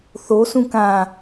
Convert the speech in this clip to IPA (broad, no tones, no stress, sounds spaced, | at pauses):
θ o s ũ k ã